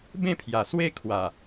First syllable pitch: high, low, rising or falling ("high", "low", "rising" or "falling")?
falling